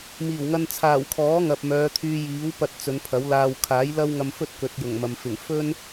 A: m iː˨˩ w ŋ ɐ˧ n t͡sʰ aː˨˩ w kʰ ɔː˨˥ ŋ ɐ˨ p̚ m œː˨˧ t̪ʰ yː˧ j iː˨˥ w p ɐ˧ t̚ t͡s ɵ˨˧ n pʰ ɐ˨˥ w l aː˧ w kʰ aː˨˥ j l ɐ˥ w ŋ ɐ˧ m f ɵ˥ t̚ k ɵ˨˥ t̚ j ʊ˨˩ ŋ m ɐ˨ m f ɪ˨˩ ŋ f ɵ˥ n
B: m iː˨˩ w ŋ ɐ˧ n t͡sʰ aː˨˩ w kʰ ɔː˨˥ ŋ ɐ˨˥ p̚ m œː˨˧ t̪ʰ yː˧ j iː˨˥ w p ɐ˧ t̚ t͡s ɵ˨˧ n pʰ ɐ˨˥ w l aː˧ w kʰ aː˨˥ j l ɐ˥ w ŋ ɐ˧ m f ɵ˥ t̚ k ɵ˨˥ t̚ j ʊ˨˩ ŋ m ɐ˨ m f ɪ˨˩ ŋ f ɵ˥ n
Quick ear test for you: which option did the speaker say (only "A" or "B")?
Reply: A